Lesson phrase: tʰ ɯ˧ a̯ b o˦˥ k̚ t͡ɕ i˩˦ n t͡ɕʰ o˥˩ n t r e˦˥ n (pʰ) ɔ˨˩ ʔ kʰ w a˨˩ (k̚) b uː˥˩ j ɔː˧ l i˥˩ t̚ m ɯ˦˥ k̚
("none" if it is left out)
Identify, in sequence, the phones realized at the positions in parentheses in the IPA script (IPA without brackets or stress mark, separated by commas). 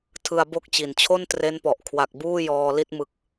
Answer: p, k̚